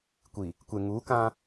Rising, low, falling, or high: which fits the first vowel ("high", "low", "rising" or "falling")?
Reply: low